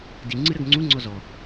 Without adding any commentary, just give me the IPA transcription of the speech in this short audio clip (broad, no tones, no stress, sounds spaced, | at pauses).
d i ŋ͡ǀ ɨ ɾ ɐ ɡ ŋ͡ǀ u ŋ͡ǀ ɔ z ɔ